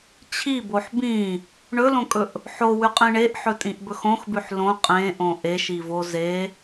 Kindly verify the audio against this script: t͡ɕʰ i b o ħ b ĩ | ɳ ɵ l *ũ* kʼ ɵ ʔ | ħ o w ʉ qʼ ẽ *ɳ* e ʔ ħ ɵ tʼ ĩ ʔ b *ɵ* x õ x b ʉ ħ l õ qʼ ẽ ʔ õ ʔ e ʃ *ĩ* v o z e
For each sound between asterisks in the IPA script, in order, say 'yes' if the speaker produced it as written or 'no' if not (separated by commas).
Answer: no, yes, yes, no